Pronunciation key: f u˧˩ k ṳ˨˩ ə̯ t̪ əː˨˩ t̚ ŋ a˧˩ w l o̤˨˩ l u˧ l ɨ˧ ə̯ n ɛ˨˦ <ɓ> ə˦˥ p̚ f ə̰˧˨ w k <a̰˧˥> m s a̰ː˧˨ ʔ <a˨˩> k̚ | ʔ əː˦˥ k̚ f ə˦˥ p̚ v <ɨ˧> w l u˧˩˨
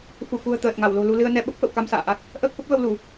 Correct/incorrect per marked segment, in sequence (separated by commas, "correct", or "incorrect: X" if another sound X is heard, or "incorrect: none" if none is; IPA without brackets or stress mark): correct, incorrect: a˧, incorrect: a˦˥, incorrect: ə˧